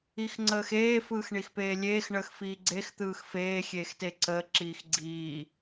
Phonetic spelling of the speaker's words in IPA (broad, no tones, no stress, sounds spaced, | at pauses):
i x ŋ͡ǀ əː x eː f ɯː x ɳ i x p eː lʲ eː x ɳ əː x f iː ɡ͡ǀ e x t̪ ɯː x f eː xʲ eː x t e ǀ əː ǁ iː x ɡ͡ǀ iː